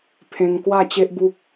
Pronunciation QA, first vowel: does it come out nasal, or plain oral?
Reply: nasal